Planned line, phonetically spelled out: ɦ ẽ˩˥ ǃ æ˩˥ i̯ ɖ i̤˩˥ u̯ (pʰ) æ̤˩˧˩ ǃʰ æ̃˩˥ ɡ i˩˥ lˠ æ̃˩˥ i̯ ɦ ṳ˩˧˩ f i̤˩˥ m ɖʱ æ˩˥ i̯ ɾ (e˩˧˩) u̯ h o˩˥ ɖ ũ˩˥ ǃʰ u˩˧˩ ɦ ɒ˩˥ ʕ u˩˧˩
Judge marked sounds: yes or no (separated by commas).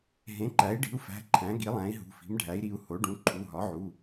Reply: no, no